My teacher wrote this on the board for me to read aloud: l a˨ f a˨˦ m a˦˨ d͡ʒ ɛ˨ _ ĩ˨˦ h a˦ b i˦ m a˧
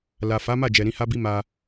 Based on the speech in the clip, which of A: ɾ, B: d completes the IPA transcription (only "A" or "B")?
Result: A